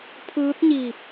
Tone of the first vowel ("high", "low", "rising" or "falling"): rising